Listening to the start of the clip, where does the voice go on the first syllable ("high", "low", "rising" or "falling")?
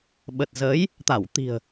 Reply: low